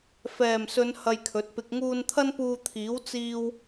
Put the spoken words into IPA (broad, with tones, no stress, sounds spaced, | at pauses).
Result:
f ɛː˨˩ m s ɵ˨˧ n h ɐ˧ j kʰ ɵ˨˥ t̚ p ɪ˧ k̚ ŋ uː˧ n t̪ʰ ɐ˥ n p uː˧ t̪ʰ iː˨˥ w t͡s iː˥ w